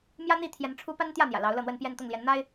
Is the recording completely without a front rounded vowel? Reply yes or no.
yes